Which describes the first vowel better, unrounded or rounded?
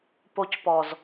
rounded